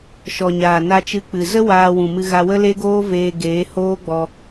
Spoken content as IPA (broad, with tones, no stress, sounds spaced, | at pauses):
ʃ ɔ˨ ɲ aː˨ n a˧ t͡ʃ ɨ˧ k͡p ɨ˨ z ə˦ w aː˧ w ũ˨ m ɨ˧ ɣ a˧ w ə˦ l e˦ ɡ oː˦ v eː˧ ɡ eː˨˦ h oː˦ ɡ͡b ɔ˧